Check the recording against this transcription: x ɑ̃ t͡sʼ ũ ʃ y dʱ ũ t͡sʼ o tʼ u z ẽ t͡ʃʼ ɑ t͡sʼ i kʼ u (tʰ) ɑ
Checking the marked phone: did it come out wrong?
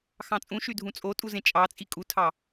no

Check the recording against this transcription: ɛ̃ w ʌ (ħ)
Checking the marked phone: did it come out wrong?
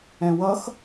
yes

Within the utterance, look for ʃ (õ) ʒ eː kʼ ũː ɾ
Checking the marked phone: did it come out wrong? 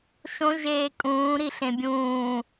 no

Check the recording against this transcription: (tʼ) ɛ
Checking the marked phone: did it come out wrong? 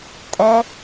no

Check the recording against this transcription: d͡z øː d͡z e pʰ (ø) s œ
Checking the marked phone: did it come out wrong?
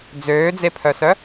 yes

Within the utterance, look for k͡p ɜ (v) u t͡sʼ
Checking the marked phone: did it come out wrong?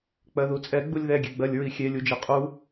yes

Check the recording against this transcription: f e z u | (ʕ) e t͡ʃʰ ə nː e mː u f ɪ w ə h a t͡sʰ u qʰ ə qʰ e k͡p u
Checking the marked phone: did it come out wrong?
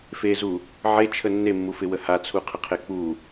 no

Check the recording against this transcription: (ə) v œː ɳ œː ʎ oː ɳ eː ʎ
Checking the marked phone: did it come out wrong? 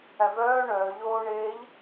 yes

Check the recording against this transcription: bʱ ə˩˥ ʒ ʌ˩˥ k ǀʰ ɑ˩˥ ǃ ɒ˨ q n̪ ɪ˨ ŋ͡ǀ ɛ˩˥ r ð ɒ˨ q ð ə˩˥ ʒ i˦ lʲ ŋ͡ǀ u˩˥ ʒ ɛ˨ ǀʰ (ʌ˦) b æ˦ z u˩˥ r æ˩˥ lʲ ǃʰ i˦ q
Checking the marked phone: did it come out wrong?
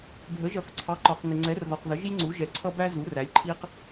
no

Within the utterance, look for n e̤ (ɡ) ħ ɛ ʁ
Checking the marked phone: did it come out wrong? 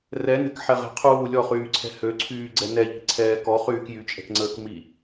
yes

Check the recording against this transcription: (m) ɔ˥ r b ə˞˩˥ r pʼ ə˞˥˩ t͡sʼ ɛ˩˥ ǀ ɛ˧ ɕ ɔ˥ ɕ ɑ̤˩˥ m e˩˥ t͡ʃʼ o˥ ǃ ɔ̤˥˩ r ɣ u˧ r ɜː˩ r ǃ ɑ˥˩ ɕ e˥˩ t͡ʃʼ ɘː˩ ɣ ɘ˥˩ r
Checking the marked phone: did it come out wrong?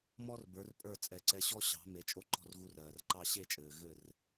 no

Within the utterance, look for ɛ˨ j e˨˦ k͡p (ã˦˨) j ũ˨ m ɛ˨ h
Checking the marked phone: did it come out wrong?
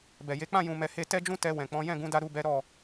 no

